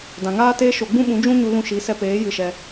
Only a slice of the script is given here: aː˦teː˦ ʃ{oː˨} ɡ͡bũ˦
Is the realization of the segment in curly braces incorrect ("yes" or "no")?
yes